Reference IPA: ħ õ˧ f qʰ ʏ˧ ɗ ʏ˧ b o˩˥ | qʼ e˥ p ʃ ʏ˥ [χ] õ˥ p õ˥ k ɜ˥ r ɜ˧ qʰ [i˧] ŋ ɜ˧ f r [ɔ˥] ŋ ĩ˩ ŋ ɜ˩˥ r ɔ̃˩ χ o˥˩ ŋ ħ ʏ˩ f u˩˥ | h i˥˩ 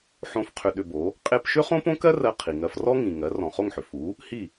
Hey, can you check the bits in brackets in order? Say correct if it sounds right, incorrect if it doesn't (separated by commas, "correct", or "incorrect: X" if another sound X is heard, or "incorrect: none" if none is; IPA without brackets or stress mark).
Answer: correct, incorrect: i˩, correct